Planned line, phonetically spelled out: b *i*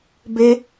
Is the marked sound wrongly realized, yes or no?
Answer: yes